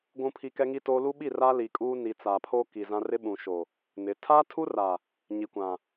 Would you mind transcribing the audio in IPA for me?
ɡʷ ũ˨ pʰ i˨ k ɛ˦ ŋ i˦ t oː˦ l u˦ ɓ i˦˨ r a˦ l i˨ kʼ uː˦ n i˨ t͡s a˨ pʰ o˦ k i˨ z ã˦ r ɪ˦ ɓ ũ˨ ʃ o˨ | n ɪ˨˦ tʰ aː˦ tʰ u˦ r a˨ | ɲ i˨ kʷ ã˨

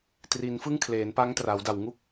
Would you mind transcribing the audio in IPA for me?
t r i˩˦ n f ɯ˥˩ ŋ kʰ l eː˩˦ n p a˦˥ ŋ t r aː˩˦ w d a˨˩ w ŋ u˥˩ k̚

